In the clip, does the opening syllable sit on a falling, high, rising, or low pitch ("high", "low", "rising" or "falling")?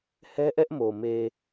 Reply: high